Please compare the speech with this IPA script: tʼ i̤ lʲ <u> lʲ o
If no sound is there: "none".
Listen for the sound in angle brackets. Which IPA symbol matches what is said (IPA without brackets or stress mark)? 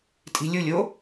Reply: u